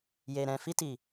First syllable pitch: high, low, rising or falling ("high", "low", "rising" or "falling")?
low